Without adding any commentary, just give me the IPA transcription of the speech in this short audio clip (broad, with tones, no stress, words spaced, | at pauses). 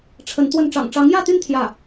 ʈ͡ʂʰə˧˥nt̪wə˥˩n ʈ͡ʂɑ̰˨˩ŋʈ͡ʂɑ˧˥ŋjä˥˧t̪y˥˧n t̪ʰjä˥˩